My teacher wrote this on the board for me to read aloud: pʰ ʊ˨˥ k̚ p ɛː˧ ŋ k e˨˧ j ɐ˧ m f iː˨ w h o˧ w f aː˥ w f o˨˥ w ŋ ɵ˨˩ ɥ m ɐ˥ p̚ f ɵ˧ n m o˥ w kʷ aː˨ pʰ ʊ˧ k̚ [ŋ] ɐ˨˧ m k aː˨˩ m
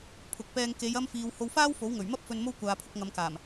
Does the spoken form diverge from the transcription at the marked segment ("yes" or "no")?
no